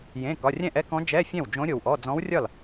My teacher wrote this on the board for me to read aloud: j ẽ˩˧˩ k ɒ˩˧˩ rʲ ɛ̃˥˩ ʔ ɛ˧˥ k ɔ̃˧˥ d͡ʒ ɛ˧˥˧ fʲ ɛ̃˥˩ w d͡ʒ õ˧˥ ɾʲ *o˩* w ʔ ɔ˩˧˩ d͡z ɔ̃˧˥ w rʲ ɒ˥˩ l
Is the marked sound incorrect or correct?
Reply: correct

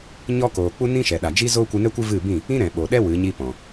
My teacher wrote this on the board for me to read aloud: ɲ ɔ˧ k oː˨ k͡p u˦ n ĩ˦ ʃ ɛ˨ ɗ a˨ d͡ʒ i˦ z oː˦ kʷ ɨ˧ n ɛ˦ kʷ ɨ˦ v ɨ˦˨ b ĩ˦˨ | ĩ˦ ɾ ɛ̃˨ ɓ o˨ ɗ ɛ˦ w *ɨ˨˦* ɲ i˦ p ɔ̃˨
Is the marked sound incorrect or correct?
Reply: correct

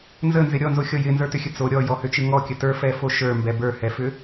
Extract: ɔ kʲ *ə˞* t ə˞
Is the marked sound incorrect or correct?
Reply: incorrect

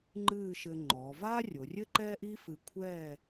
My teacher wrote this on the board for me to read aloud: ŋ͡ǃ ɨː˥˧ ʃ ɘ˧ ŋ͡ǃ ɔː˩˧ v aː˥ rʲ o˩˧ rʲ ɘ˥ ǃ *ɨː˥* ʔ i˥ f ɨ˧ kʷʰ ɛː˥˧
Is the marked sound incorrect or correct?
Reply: incorrect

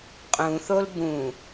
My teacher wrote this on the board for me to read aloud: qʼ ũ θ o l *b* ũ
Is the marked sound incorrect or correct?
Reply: correct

